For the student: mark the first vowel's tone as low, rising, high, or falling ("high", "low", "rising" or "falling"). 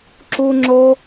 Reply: high